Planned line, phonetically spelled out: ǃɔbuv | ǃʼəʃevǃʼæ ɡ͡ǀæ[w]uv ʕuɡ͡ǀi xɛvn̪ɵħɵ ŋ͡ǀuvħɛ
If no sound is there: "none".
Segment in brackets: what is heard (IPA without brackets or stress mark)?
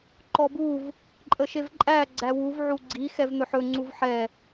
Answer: w